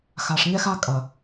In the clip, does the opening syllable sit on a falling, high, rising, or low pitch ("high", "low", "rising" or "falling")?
low